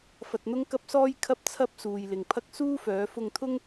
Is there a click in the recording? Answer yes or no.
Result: no